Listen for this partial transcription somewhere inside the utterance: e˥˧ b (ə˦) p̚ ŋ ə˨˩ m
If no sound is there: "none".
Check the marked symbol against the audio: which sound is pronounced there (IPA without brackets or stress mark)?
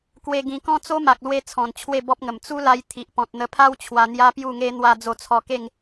ɔ˦